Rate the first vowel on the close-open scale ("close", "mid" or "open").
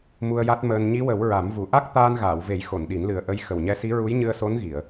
close